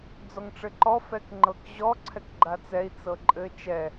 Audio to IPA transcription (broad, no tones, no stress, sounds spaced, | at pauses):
d͡z ɔ ŋ ʈ͡ʂ ɘ ǃ ɔ f ɛ k ŋ͡ǃ ɤ k ʑ ɔ ǀʰ ɛ k ɡ͡ǃ a t͡s ɛ i̯ t͡s ɤ ǃʼ ɘ t͡ʃ ɛ